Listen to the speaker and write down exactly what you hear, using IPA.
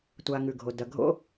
tʷ a˨ ŋ ʉ˩ ɡʱ o˩ d ɐ˨ ɡʱ o̰˥

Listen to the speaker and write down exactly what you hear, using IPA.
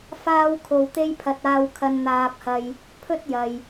f aː˥ w kʰ o˧ w t̪ e˥ j pʰ ɐ˧ t̚ aː˧ w kʰ ɐ˧ n n̪ aː˧ p̚ h ɐ˧ j | pʰ ɵ˥ t̚ j ɐ˨ j

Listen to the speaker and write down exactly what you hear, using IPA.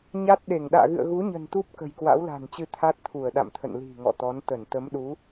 ɲ a˦˥ t̚ ɗ e˧˩ ŋ ɗ a̰ː˧˨ ɣ ɨ̰˧˨ ə̯ ɣ u˨˦ ɲ ə̤˨˩ n t̪ u˦˥ p̚ k ə̤˨˩ j k w a̰˧˥ w l a̤˨˩ n t͡ɕ ɨ˧ t̪ʰ a˦˥ t̚ t̪ʰ u˧˩ ə̯ ɗ a̰˧˨ m t̪ʰ ə̰˧˨ n l i̤˨˩ ŋ ɔ̰˧˨ t̪ ɔ˨˦ n t̪ ə˧˩ n t̪ ə˨˦ m ɗ u˨˦

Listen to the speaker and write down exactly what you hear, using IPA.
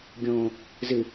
ɡʲ õː | z ɨ

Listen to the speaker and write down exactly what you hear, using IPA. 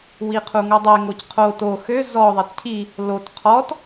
w i qʰ u ŋ o dˤ e ŋ o c qʰ o t o x ø z ɔ ðˤ e t cʰ i | l o t qʰ ɔ t

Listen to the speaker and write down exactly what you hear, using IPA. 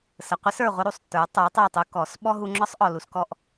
s ə˨ qʷ ɪ˦ s ə˞˨ ʁʷ ə˦ ɾ u˨ sˤ tː ə˞˨˦ tˤ ə˞˨˦ tˤ ə˞˦˨ tˤ u˧ k ɔ˨˦ s ɓ ɔ˦ ɦ u˧ ŋ͡ǁ ɒ˦ sˤ ʔ ɔ˨ l u˧ s k ɔ˦ ʔ

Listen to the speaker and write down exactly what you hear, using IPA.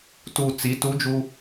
t u t͡s i t u d͡ʒ u

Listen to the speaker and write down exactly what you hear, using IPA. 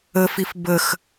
ə f i f b ə x

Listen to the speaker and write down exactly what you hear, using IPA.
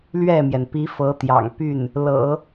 l ɥ ɛ˥˩ m j ɛ˩ n p i˧˥ f ɤ˧˥ t̪ j ɑ̰˨˩ ŋ p y˥˩ n | l ɤ̰˨˩˦

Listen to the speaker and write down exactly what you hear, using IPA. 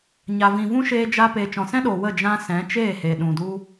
ɲ a˨ v ĩ˨ v ũ˦ ʃ eː˧ d͡ʒ a˧ p eː˨ t͡ʃ ɔ̃˨ s ɛ̃˦ ɗ o˨ w ə˦˨ d͡ʒ ã˧ s ɛ̃˨˦ t͡ʃ eː˦˨ h e˨ ɗ ũ˨ d u˦

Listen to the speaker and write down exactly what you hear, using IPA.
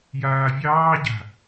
j aː vʲ ɑː ɟ a̤

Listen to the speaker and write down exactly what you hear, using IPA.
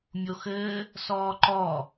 mʲ o x ɘː | s ɔː ǃ ɔ

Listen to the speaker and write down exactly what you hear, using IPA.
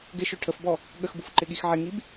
ɡ ɪ ʃ ø ʈʰ ə f b ɔ | ɠ ə x b u f ǃ ɪ ɠ i x ʕ ɪ ŋ i b

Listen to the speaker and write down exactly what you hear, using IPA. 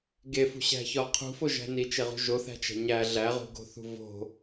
ɡ e f ṳ ɕ æ̤ ç ɒ qʰ ṳ f o ʒ æ̤ n i t͡ʃ e ʁ ṳ ʒ o θ æ̤ t͡ʃ æ̤ ɲ æ ɮ æ ʁ ṳ ɡ o̤ θ ṳ v o̤

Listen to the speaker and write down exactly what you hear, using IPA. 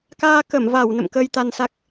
k aː˧ k ə˧˩ m v a˧˩ w n ə̰˧˨ m k əː˧ j t̪ a˧ n s a˦˥ k̚

